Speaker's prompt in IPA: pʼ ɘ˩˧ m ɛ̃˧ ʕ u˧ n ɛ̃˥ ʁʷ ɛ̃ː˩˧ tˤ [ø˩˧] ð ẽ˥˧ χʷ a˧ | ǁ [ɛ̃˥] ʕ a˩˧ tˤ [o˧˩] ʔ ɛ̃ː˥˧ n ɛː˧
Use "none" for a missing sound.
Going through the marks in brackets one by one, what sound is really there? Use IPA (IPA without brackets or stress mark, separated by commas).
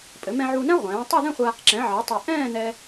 ø˥˧, ɛ̃˩˧, ɵ˧˩